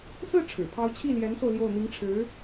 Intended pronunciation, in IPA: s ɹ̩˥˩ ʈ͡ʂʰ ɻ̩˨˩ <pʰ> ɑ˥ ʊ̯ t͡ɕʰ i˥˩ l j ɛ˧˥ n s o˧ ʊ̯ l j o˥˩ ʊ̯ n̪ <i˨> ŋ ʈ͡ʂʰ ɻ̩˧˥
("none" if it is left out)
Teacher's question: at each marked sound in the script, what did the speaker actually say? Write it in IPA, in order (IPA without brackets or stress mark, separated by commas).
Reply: pʰ, i˧˥